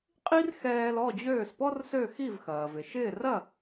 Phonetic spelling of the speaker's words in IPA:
qʼ i˥ r x ɛː˧ l ɔ˥˩ d͡ʑ øː˥˩ s p ɔ˥ r s ø˥˩ x i˥˩ v x ɐː˩ v ɪ˩ ʃ ɪː˥˩ r ɐ˥˩

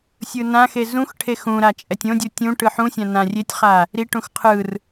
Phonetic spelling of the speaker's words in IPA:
sʲ ɯ n ã x e z ũ x ʈʰ e x ũ ɾ a t͡ʃʼ ɛ tʲ õ dʲ u tʲ ũ ʈ ɯ ħ ũ sʲ ã n ã rʲ e tʲ χ a | ɾ i ʈ ũ x qʰ ɯ r

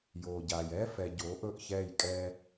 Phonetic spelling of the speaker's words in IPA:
j oː˨ ɟ aː˨ j ɛː˦ f ɛ˨ ɟ oː˨˦ ʔ ɵ˦˨ ʔ ç ɛː˦˨ j kʼ ɛː˦

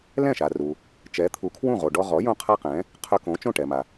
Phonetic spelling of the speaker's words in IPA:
l ɛ̃˥˩ ʃ a˩ r u˩ | t͡ʃ ɛ˩˥ t̪ʰ u˩˥ kʰ w ũ˥˩ ʁ o˩ ɖ ɔ˧ ʁ ɔ˩˥ j õ˥ qʰ a˥ q ɛ̃˩˥ | qʰ œ˧ k õ˩˥ t͡ʃ õ˥˩ ʈ ɛ˩ m a˩

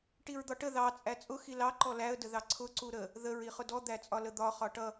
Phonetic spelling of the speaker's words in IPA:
ʈ i ɹ d̪ ɒ ʈ ə ð ɑ t͡sʼ æ t͡sʼ ʊ x i l ɑ ǃ ɔ l æ ə̯ d ə ð ɑ ǀʰ ʊ ǀ u ɾ ə | ð ə ɹ i χ ʊ d ɔ d̪ æ t͡sʼ ɒ l ə d̪ ɒ χ ɒ ʈ ʌ

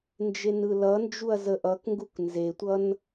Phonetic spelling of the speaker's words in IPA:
n d͡ʒ e n ɯ l ʌ n d͡ʒ u ɐ̯ z ə ʔ ʌ k ŋ ɡ u k n z e tʷ ʌ n

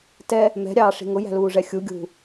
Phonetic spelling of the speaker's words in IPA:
t ɛ | m ɛ̤ ɾʲ ɑː ʂ i̤ ŋ ʊ j æ̤ l uː ʐ ɛ xʲ u ɡʲ ṳ

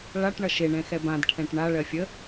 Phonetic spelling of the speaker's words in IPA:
ɭ a ʈ ɳ ʌ ʃ e ɳ ɛ̃ x ɛ b ã d ʈʰ ɛ̃ ʈ ɳ a ɭ ɜ fʲ ə

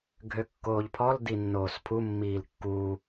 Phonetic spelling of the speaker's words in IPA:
ɡʱ ø kː oː ʎ pʰ ɔ l d i nː oː s pʰ u mː iː l kː uː

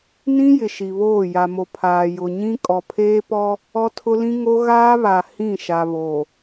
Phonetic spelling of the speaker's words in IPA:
n ĩ˦ j ɪ˨ ʃ i˨ β oː˦˨ j a˨ m o˨ pʰ aː˨ j ʊ˨ ɲ ĩ˦ kʼ ɔ˨ pʰ eː˦ p ɔ˦ | ɔ˦ tʰ ʊ˦ l ĩ˦ ŋ o˦ ɣ aː˦ β a˨ h ĩ˦˨ ʃ a˨ β o˨

